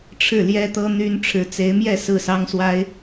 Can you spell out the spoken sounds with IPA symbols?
ʈ͡ʂʰɻ̩˥˩ljɛ˥t̪ɤ˥ n̪y˥n ʈ͡ʂʰɻ̩˧˥t͡se˧˥ɪ̯mjɛ˥˧ sɹ̩˥˩sɑ˥ŋswa˥ɪ̯

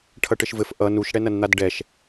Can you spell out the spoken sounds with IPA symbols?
ʈʰʌʈɘʃvɘf ʔʌ nuʃɽɛnɐnn̪ad ɖɛʃ

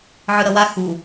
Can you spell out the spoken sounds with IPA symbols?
ʕɯɾʌwa xu

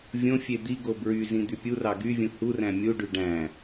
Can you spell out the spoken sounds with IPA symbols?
vʲõ fʲed̪iɡo bɹyzĩ d̪ypʲurɑ ɡyvʲũ huræ̃ mʲuɖy ɖæ̃

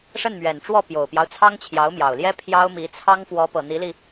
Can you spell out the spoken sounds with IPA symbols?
ʂə˥˩nmɥɛ˨˩nʈ͡ʂwɔ˥˩ pjo˨˩ʊ̯pjɑ˦ʊ̯ t͡sʰɑ˥ŋt͡ɕʰjɑ˧˥ʊ̯mjɑ˨˩ʊ̯ljɛ˥ pʰjɑ˥ʊ̯mi˧˥ t͡sʰɑ˥ŋfwɔ˧˥pɤ˨˩ n̪i˧˥li˧

